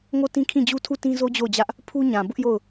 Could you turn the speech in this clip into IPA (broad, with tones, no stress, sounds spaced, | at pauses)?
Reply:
ŋ o˦˨ t ĩ˦ kʰ ĩ˦˨ d͡ʑ u˦ tʰ u˦˨ t ĩ˦ z o˦ d͡ʑ o˦˨ ʊ̯ d͡ʑ ä˦ ʔ | pʰ u˦ ɲ ã˨ b ʊ˦ ʔ j o˦˨ ʊ̯